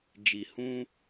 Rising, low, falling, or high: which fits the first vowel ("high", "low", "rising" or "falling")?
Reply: low